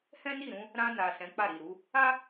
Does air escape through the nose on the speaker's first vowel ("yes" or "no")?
yes